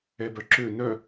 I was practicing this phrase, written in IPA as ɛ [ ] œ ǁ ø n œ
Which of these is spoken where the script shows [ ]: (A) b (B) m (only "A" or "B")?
A